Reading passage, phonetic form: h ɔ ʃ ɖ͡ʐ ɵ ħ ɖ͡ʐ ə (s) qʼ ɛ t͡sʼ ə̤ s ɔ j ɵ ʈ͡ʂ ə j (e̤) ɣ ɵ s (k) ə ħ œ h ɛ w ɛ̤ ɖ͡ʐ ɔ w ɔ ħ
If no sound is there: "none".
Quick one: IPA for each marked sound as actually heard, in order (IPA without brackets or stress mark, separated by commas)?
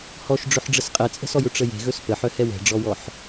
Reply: s, e̤, p